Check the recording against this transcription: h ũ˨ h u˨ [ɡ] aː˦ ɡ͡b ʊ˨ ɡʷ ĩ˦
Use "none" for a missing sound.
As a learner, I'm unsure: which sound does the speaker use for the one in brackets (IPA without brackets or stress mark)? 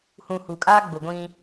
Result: kʼ